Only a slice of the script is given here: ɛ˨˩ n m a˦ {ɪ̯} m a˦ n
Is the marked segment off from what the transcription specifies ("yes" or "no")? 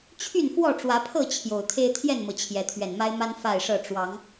no